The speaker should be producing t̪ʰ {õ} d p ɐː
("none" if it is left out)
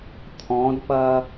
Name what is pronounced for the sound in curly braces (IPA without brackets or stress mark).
ɔ̃